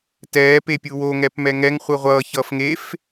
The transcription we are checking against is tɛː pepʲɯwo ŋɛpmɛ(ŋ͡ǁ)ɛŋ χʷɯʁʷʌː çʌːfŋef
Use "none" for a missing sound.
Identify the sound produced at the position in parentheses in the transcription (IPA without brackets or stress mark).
ŋ